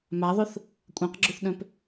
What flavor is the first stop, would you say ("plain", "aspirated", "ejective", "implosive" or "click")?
ejective